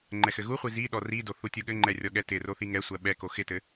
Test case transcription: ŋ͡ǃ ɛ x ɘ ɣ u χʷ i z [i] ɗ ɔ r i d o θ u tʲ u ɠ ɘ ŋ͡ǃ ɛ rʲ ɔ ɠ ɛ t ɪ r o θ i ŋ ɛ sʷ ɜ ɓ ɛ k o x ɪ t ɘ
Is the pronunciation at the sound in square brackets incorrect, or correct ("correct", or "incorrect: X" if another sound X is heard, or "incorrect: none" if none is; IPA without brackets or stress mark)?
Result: correct